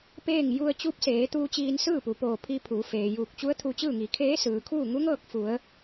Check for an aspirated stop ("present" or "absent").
present